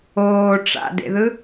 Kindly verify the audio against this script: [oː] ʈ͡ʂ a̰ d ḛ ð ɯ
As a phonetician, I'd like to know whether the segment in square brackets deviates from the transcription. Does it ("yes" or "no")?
no